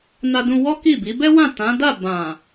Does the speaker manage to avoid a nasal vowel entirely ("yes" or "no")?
no